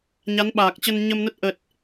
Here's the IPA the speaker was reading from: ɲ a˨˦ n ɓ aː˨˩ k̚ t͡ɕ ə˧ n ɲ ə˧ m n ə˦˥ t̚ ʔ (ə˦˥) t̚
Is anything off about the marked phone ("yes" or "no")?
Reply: yes